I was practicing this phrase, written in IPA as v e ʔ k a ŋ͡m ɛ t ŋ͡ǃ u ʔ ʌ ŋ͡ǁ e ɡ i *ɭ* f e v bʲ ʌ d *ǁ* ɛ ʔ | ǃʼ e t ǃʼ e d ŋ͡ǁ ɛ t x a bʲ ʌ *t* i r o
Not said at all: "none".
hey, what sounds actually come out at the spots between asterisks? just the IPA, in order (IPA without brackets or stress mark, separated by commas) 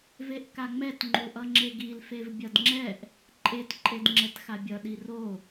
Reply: l, ŋ͡ǁ, ɗ